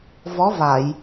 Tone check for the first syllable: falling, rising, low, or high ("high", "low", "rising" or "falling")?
rising